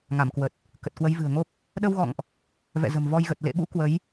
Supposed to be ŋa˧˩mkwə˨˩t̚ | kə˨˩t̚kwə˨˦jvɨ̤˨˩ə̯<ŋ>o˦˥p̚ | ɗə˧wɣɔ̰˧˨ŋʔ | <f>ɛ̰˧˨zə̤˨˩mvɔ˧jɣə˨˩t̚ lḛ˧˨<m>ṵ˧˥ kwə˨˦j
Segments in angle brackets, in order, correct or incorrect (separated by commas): correct, incorrect, incorrect